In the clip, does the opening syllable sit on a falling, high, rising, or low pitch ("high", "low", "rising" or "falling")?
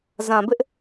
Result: low